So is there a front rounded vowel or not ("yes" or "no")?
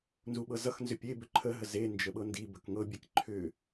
yes